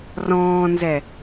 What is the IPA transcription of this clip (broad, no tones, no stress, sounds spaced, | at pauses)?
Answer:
r ɔ̃ː n z ɛ